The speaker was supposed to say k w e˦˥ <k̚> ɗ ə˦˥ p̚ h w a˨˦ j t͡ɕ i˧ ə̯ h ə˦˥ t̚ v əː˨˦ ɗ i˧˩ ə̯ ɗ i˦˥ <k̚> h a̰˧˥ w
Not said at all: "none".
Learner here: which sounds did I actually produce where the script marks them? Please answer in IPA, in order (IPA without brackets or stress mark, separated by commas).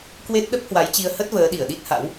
t̚, t̚